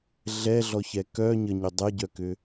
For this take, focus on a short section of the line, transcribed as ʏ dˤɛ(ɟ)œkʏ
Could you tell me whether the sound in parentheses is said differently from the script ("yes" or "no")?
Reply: no